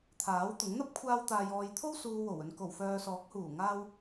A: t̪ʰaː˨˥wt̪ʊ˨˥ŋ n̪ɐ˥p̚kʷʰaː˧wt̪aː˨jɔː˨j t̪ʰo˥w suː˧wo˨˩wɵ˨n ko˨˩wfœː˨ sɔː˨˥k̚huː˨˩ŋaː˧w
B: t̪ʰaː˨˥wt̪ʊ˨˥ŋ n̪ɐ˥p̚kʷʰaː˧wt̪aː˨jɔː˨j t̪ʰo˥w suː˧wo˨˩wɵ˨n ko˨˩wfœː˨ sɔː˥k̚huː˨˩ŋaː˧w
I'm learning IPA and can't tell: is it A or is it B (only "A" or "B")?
A